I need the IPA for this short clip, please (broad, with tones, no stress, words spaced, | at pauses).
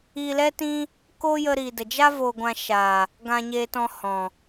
iː˧lɛ˦tĩ˦ | ko˦jə˧ ɾiː˨də˨d͡ʒa˦ vo˧ɡʷã˧ ʃaː˨ | ɡã˧ɲeː˧tɔ̃˧ hɔ̃˨